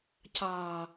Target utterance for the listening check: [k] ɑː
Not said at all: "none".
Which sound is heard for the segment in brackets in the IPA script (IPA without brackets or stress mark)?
c